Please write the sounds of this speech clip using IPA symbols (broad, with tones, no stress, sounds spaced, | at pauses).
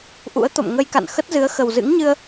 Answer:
ʔ ṵ˧˥ ə̯ t̪ o̰˧˨ m ŋ ə˧ j k a̰˧˨ n x ə˦˥ t̚ z ɨ˨˦ ə̯ x ə˨˩ w z ɨ̰˧˥ ŋ ɲ ɨ˧ ə̯